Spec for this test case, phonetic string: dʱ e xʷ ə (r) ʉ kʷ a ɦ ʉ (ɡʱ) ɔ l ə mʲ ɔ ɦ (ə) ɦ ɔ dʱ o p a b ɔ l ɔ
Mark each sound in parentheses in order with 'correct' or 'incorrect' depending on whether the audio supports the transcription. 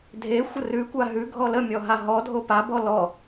correct, correct, incorrect: a

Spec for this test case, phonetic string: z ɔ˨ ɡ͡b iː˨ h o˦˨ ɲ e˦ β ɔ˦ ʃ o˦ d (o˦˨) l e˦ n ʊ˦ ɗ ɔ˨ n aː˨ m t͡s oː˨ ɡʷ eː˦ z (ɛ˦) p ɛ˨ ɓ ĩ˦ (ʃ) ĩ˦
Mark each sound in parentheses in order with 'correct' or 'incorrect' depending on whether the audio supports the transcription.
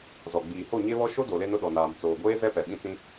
incorrect: o˨, correct, incorrect: t͡s

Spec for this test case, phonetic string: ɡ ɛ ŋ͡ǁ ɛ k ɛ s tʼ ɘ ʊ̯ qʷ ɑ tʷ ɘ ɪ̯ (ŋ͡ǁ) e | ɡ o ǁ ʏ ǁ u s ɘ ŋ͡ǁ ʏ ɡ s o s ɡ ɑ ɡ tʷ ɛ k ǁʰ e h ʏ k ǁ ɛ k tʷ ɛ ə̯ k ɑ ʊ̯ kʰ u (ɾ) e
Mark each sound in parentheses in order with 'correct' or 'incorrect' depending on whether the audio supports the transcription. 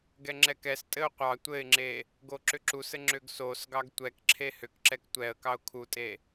correct, incorrect: tʼ

